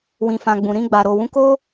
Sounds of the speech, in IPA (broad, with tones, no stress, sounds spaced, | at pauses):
w ĩ˨ f ã˨ ɡ͡b ũ˨ ɾ ĩ˧ ɡ͡b a˨ ɾ o˨ w ũ˨˦ k o˦